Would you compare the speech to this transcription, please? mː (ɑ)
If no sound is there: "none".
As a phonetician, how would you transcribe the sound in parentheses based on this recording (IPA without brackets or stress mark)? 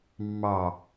ɑ